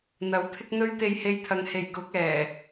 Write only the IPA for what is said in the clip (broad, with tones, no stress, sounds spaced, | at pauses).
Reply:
n̪ ɐ˨˥ w t̪ʰ ɪ˥ k̚ n̪ ɵ˥ ɥ t̪ e˧ j h e˧ j t̪ʰ ɐ˨ ŋ h e˨˩ j k ʊ˨˥ k̚ ɛː˨˩